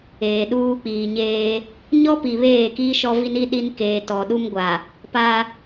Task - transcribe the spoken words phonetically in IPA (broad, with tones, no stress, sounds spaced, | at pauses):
eː˨ ɗ uː˦ k͡p iː˨ ɲ eː˦ | ɲ ɔ˦ p i˨ β eː˦˨ k i˦ ʃ ɔ˦ v i˦ n i˦ ɗ i˦ n k eː˨ t ɔ˨ ɗ u˦ m ɡʷ a˨ | p a˦